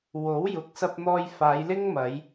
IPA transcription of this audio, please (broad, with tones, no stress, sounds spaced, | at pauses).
w o˨˥ w j ʊ˨˥ k̚ s ɐ˧ p̚ n̪ ɔː˧ j f aː˨˧ j l ɪ˥ ŋ m ɐ˨˧ j